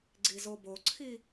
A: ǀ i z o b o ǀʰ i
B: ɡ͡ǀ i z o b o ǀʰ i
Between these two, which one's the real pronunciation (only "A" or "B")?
B